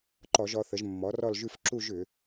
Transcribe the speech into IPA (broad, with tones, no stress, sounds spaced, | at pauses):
ǃ ɔ˧˩˧ ʒ ɔ˩˧ θ ə˩˧ ʒ mː ɔ˩˥ r ɔ˥˧ l ʒ ʉ˥˧ f ǁ u˥˧ ʒ ʏ˧˩˧